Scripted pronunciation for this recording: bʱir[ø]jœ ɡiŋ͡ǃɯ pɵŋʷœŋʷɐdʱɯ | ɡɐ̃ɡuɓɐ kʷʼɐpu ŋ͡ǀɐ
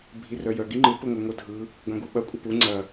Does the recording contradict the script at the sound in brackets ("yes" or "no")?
yes